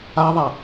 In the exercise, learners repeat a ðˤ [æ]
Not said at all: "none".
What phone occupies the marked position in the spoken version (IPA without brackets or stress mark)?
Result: æ